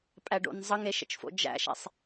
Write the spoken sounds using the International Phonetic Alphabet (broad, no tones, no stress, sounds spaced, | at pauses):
pʼ æ ɖ o̰ n zˤ ə ŋ e ʃ ə̰ t͡ʃ f o̰ d͡ʒ æ̰ ʃ ɛ̰ sˤ